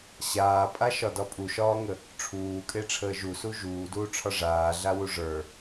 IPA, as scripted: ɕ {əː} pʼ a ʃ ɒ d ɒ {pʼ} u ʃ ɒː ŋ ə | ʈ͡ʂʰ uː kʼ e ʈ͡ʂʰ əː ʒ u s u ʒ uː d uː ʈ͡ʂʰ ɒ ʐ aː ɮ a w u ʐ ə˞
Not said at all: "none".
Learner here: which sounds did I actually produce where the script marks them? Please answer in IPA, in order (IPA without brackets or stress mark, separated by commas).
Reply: aː, pʼ